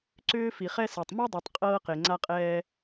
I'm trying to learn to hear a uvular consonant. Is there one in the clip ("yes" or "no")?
yes